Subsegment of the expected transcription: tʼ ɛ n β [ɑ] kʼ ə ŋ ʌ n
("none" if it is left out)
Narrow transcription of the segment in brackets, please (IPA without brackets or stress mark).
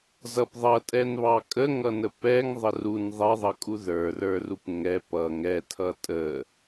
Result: ɑ